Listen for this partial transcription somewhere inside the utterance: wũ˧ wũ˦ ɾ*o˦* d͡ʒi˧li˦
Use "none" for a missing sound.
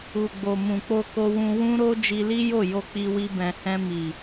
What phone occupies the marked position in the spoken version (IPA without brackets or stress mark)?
o˦